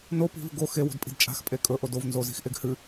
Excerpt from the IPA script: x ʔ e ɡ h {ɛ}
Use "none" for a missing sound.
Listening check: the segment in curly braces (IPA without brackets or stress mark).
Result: ɨ